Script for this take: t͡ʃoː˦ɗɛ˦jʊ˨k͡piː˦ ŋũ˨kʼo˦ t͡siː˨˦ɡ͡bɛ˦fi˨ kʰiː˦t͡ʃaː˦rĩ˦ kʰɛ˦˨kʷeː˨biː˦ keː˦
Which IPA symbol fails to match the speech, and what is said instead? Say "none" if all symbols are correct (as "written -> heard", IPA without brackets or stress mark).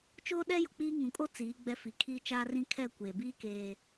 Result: none